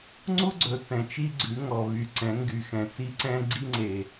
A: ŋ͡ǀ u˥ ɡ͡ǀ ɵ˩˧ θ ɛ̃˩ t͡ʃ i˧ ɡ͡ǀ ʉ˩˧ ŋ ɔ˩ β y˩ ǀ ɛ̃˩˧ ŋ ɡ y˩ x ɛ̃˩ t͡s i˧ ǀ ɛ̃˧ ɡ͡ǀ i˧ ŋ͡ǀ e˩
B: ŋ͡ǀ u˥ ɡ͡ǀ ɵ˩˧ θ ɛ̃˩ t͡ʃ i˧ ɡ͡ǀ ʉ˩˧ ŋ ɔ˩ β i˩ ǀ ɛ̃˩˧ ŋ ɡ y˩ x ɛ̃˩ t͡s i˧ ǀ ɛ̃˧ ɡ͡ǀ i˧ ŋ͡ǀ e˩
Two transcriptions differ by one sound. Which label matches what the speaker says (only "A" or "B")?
A